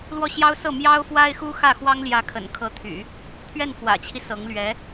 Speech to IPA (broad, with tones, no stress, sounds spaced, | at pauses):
l w ɔ˥˩ ɕ j ɑ˥ ʊ̯ s ɤ˥˩ m j ɑ˥ ʊ̯ f w a˥ ɪ̯ x u˥ x ä˥˩ x w ɑ˥ ŋ l j ä˧˥ kʰ ə̰˨˩ n kʰ ɤ˧˥ t̪ʰ y̰˨˩˦ | pʰ ɥ ɛ˥˩ n f w ä̰˨˩ t͡ɕʰ i˦ s ɤ˧˥ ŋ l ɥ ɛ˧˥